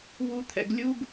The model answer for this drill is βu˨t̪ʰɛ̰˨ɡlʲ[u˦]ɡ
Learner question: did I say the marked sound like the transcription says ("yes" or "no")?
yes